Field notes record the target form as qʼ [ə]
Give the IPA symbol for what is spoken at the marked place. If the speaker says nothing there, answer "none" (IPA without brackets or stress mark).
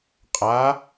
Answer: a